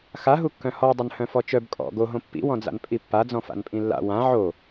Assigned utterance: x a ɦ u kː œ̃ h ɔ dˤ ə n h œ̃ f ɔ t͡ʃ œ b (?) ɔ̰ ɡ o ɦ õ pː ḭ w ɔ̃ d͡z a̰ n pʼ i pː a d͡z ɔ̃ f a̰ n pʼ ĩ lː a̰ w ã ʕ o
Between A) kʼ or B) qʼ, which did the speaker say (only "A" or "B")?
A